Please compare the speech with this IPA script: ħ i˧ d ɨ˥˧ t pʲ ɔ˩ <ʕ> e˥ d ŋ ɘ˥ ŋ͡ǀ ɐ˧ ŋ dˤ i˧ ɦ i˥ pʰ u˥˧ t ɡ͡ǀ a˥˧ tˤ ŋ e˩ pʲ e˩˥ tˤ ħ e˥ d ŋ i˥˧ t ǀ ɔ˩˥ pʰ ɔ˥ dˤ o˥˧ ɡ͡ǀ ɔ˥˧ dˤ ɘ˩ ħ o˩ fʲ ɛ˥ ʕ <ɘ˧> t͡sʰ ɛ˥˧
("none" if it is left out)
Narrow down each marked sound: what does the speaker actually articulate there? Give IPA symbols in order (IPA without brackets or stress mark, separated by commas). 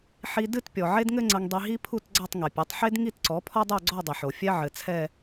ʕ, ɘ˩